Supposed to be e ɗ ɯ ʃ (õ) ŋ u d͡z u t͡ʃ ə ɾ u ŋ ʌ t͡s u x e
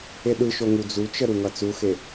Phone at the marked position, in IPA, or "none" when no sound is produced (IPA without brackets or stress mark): o